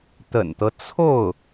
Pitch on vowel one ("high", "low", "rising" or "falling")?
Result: low